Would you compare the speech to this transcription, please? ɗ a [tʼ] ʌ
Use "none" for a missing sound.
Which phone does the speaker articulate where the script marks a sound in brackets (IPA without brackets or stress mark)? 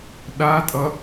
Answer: tʼ